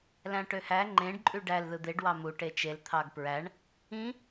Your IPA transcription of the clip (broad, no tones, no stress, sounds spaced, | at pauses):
l æ̃ ʈ ø h æ ŋ͡ǃ ẽ ɖ ǃʼ y ɖ æ l ð ɯ d̪ e ɖ w ɑ m u ʈ e t͡ʃ e l t̪ʰ ɑ ɡ p ɹ æ ɳ | ĩ